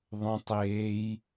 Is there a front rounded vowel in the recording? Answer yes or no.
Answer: no